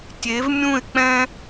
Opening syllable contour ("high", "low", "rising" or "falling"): rising